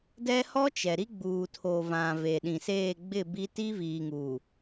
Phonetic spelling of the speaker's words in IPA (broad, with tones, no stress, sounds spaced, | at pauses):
d ɛ˦ h ɔ˦ t͡ʃ ɛ˨ ɾ i˦ ɡ͡b uː˨ tʰ o˨ v ã˨ v e˨ ɗ ĩ˨ s eː˦˨ ɡ͡b ɪ˦˨ b i˦ t i˦ v iː˨ ŋ uː˨